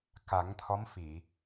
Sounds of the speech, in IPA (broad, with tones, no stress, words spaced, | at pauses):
ka˨˩˦ŋt̪ʰɔ˧˥m fi˨˩˨